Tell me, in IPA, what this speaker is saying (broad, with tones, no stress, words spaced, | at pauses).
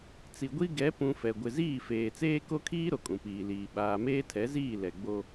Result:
t͡si˨ɡʷi˦ ɡɛ˨˦pũ˨ fɛ˨ ɡʷɪ˨ziː˦˨feː˨ t͡seː˦ko˦kʰiː˦ ɾo˨kʼũ˨piː˨liː˨ ɓaː˨meː˦tʰɛ˨˦ziː˦˨ lɛ˨ɡ͡bo˦